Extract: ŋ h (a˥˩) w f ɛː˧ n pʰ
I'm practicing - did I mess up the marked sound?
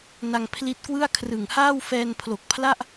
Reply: yes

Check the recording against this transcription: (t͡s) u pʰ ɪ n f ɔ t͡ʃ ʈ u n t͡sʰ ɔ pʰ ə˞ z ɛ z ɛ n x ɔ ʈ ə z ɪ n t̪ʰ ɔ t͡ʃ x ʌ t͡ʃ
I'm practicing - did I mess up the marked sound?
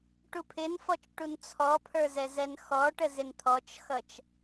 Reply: yes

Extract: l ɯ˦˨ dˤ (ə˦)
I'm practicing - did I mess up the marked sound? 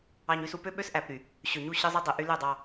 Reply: yes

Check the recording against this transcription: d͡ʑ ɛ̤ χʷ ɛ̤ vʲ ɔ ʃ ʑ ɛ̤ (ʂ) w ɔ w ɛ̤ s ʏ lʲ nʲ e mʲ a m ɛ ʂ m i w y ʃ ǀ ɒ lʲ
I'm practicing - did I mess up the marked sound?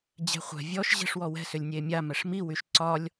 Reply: no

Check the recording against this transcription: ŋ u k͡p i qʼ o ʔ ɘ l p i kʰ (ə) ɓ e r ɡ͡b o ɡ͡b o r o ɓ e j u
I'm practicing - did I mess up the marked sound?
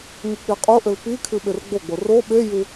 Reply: yes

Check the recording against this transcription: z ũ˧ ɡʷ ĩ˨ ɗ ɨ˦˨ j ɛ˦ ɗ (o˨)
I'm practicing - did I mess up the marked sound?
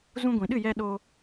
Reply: yes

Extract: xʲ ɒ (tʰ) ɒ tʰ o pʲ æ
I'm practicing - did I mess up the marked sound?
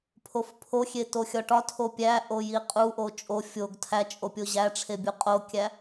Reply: yes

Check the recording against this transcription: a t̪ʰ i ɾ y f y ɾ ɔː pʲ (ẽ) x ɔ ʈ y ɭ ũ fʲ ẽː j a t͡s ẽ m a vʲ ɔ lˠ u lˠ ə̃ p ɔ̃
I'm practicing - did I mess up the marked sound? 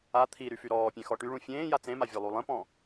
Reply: no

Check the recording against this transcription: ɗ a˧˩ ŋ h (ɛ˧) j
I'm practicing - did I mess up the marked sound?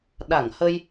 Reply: yes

